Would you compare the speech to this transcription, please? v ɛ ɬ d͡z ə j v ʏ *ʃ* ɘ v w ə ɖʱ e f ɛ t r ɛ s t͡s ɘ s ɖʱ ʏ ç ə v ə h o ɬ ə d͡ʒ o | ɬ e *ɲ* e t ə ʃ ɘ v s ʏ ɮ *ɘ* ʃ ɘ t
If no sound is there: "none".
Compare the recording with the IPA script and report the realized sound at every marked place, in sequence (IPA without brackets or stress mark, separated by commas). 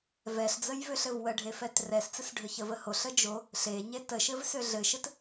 ɬ, ɲ, ɘ